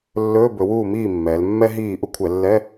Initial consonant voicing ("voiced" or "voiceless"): voiced